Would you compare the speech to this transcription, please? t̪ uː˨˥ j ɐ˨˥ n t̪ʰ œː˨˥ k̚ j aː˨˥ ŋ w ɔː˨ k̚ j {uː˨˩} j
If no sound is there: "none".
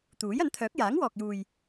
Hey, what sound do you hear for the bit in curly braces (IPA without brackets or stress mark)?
uː˨